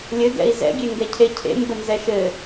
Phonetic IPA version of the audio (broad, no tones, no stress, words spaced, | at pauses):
lʲɘ ɡɛ̰i̯zɛ̰ ɡʲeŋɡɛcʰecʰḛ mbənzɛʃɘ